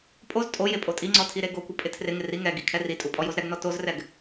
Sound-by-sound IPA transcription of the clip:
pʼ o z tʼ o j e pʼ o tʼ i ŋ͡ǀ ɔ tʰ i ɾ e ɡ o kʷ ɪ pʼ ɪ tʰ r ɪ ŋ ɪ r i ŋ ɛ ɡ i kʰ ɛ r i tʼ u pʼ ɔ j o z ɾ ɛ ɡ n ɔ t o z r ɛ ɡ

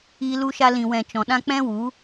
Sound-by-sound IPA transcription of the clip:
iː˧ l u˧ ʃ a˧ l ĩ˨ w ɛ̃˨ t͡ʃ ɔ̃˨ ɗ ã˧ k͡p ɛ̃˦ w u˨˦

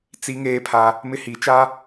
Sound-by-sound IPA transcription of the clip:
t͡s i˦ ŋ eː˦ pʰ a˦ | m ɪ˦ h i˨˦ t͡ʃ a˦

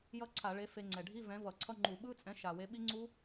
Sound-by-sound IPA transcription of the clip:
j ʌ˦˥ ǀʰ a˧˩˧ ɭ e˨˥ f e˧ ŋ͡ǀ ɛ˨˩ ɖʱ i˧˥˧ v ɛ̃˨˥ v ʌ˧˩˧ ǀʰ ʌ˧˥˧ ŋ͡ǃ u˧˩˧ ɓ ɯ˧˥˧ t͡sʼ ɛ̃˨˥ ʃ a˨˩ w e˨˥ ɓ i˦˥ ŋ͡ǀ u˦˥

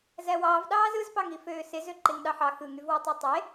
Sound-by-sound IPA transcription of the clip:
z æ w ɑː v ɗ ɑː z ɯ z p ɑ ŋ i f øː s e z ø ǃ e ŋ ɗ ɑ ħ ɑ x ɯ ŋ y v w o tˤ ø tˤ e

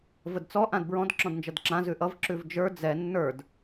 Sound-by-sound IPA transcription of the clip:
v ə d t͡s ɔ ʔ ã d b ɹ ɔ̃ d ǁ ɔ̃ d n d͡ʒ ʌ d ǁ ã z ʉ ʔ ʌ v ǁ ʉ v d͡ʒ ə˞ d͡z ɛ nː ə˞ d

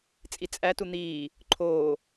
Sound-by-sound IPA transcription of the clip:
t͡sʼ i t͡sʼ æ t u n̪ iː | ǃʰ oː

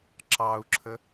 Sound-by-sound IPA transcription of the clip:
ǁ ɑ u̯ ǁʰ ə

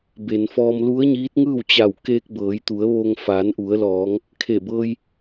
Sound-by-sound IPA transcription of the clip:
b e˩ n f ɔː˧ m l u˧˥ ə̯ ɲ iː˧˥ t̚ ŋ ɯː˥˨ w t͡ɕ a˧˩ w k eː˧ k̚ b ɤː˩˧ j t̪ u˩˧ ə̯ ʋ oː˧ ŋ f aː˩˧ n ʔ u˩˧ ə̯ l ɔː˩˧ ŋ | kʰ e˧˩ b ɤː˧ j

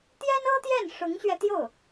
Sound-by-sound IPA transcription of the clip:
t̪ j ɛ˥ n ɤ˥ t̪ j ɛ˥˩ n ʂ ʊ˧˥ ŋ ɕ ɥ ɛ˧ t̪ j o˥˩ ʊ̯

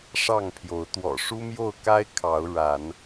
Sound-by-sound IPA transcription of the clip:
ʂ ɑ˥˨ ŋ pʰ j o˨˦ ʊ̯ t̪ w ɔ̰˨˩ ʂ u˦ m j o˥˨ ʊ̯ k a˦ ɪ̯ kʰ ɑ˨˦ ʊ̯ ɻ a˨˦ n

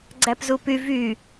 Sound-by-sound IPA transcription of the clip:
ɡ͡ǀ æ p z u p y v y

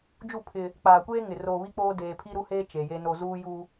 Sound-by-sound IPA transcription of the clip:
d͡ʒ u˦˨ pʰ ɪ˦ | k͡p aː˨ kʷ eː˦ ŋ ɪ˨ r oː˨ β i˦ k͡p oː˦ d eː˨ pʰ i˦ ɾ u˦ h eː˦ t͡ʃ e˨ j e˦ n o˦ z uː˦ j u˦

